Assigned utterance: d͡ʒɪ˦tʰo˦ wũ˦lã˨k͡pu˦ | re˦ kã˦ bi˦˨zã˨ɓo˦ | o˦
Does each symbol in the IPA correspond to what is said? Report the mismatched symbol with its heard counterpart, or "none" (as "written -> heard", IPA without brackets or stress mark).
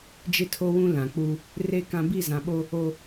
none